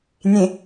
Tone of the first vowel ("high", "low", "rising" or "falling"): low